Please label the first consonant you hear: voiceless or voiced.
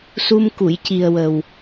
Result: voiceless